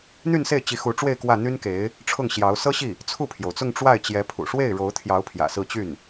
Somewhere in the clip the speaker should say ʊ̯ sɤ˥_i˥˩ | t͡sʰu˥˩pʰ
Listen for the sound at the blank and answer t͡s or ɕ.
ɕ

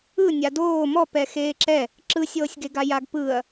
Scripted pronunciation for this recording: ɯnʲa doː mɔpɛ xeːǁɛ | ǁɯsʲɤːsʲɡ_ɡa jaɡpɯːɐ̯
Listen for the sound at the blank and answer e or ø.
e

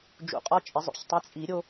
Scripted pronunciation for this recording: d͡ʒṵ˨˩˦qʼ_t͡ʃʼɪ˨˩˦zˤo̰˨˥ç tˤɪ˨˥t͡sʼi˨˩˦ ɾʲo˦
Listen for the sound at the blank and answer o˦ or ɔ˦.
ɔ˦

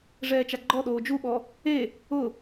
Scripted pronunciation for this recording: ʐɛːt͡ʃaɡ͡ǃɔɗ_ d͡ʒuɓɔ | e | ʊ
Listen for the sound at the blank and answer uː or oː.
oː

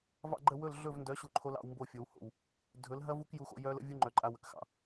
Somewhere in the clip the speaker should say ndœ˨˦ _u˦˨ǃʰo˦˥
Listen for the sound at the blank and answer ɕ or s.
ɕ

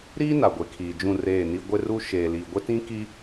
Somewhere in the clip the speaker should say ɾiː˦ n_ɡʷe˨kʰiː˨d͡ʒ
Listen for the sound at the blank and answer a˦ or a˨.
a˨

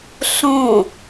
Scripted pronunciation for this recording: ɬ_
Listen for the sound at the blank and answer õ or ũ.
õ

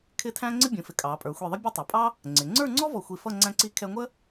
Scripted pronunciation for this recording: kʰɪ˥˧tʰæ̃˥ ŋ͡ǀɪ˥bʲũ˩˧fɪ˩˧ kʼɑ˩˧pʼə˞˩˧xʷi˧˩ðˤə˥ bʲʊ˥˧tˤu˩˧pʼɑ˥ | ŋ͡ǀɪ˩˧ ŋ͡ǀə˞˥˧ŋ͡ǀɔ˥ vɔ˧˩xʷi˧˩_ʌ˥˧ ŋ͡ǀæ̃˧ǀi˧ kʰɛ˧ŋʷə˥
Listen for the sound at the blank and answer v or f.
f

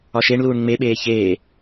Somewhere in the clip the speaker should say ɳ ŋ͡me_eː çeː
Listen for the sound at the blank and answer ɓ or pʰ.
ɓ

